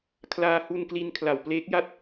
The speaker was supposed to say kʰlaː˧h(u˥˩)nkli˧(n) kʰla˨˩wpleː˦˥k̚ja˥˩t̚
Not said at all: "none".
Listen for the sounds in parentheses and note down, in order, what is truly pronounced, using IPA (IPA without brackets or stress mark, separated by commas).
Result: u˧, n